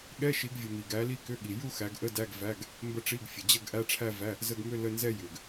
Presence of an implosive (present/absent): present